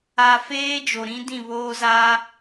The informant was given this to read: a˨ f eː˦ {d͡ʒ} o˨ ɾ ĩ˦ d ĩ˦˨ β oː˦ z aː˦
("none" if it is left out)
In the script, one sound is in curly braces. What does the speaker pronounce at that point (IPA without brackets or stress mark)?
d͡ʒ